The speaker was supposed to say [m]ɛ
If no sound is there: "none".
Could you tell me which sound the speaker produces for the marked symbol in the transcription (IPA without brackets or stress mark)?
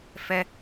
f